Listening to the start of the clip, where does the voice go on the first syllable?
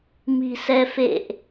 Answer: low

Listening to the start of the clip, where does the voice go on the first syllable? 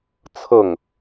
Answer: falling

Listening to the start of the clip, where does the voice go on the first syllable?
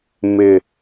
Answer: low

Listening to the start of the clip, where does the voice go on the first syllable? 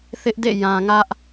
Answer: high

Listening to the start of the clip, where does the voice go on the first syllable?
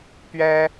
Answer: high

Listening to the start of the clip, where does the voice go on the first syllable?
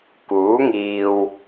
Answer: rising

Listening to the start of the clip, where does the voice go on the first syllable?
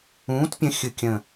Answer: rising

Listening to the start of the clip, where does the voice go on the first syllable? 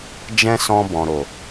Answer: high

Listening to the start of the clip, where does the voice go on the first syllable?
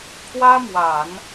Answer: high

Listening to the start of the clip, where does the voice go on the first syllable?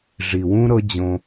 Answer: low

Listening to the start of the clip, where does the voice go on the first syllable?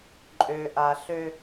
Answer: low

